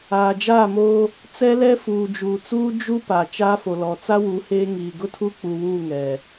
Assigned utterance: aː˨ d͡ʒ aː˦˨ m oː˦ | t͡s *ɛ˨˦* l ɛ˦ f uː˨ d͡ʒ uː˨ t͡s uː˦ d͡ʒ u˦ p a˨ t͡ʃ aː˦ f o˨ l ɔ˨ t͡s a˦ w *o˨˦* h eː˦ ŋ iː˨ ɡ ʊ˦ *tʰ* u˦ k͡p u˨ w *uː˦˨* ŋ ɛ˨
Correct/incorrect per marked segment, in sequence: incorrect: ɛ˦, incorrect: u˨˦, correct, correct

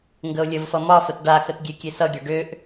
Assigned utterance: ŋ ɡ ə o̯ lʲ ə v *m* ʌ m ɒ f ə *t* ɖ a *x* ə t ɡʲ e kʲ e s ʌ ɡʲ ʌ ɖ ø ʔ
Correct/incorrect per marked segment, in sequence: incorrect: f, correct, correct

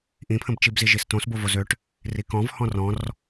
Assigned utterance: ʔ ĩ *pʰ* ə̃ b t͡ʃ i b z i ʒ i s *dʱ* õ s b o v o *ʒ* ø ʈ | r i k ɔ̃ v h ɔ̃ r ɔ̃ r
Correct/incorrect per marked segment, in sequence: correct, incorrect: t, incorrect: z

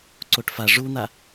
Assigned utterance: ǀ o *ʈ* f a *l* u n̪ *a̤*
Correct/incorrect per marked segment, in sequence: correct, incorrect: ʐ, incorrect: a

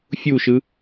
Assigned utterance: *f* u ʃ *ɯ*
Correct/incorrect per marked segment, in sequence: incorrect: fʲ, correct

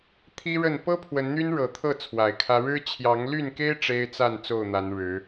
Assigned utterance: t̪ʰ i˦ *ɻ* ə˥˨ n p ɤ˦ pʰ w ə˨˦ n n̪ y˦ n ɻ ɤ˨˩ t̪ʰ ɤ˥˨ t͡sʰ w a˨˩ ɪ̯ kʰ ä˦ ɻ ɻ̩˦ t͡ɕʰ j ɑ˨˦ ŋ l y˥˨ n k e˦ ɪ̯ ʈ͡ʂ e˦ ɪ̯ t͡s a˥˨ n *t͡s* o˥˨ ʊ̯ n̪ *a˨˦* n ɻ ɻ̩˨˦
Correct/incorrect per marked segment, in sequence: correct, correct, correct

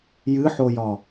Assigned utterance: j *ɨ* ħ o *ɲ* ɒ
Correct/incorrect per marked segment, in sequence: correct, incorrect: j

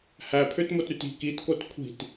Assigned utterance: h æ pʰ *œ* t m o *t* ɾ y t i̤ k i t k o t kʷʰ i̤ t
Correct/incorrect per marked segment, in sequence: incorrect: ø, correct

